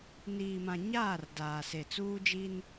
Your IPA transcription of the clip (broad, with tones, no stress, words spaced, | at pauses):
niː˨ mã˨ɲaː˦˨r daː˨se˨t͡suː˦d͡ʒi˦n